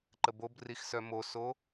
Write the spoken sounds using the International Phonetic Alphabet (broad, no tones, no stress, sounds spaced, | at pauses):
ǃ ə b o b r i x s œ m o s o